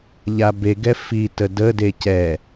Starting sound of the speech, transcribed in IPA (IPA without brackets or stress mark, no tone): ʎ